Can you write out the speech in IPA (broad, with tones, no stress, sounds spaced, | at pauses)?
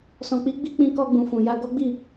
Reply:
s ɔ̃˨ k͡p i˨˦ ɡ͡b i˦ k͡p ĩ˧ k ɔ˧ ɡ͡b ũ˨ f ũ˨ j a˧ ɡ ɔ˦ ɡ͡b i˦˨